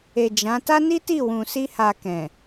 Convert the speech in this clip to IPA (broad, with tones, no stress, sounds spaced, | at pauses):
e˨ d͡ʒ ã˨˦ t a˦ n i˦ t i˦˨ w ũ˨ s i˧ h a˨ k ɛ̃˨